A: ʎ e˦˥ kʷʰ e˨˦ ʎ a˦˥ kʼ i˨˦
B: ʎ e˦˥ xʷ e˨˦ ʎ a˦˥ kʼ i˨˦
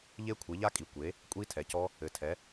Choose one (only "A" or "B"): A